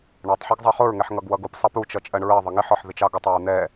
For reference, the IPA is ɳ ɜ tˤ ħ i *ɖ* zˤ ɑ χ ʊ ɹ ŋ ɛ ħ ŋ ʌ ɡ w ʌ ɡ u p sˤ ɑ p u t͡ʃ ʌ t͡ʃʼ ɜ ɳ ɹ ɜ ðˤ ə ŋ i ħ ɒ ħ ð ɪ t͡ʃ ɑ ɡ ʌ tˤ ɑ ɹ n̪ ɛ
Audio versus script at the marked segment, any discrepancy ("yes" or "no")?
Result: yes